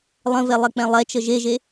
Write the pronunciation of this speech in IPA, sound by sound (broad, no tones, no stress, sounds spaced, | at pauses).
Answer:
lˠ ə̃ v ɛ lˠ ɛ k͡p ɛ̃ lˠ ɛ t͡ʃ ə ʒ e ʒ e